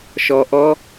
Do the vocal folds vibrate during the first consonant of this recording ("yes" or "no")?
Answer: no